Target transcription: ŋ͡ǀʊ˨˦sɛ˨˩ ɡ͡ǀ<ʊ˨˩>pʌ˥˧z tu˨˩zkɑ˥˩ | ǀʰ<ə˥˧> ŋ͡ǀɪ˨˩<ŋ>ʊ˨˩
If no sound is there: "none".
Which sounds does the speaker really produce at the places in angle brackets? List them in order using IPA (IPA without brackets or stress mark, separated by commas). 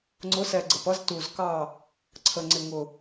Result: ə˨˩, ə˨˩, ŋ